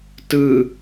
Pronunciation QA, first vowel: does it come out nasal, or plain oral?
oral